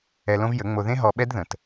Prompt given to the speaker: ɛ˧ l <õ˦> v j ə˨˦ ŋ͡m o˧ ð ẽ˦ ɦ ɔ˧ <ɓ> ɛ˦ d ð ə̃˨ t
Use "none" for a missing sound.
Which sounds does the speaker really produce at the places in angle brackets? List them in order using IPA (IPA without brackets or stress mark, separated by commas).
õ˦, ɓ